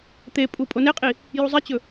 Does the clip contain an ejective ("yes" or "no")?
yes